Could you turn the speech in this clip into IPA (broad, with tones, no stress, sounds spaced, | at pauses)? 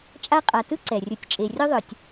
t͡ʃʼ a˦ qʼ a˨ t ɯ˥ ǀ ɛ˩ rʲ ɯ˨ tʲ t͡ʃʼ e˨ rʲ ɔ˥ ðˤ ɯ˨ tʲ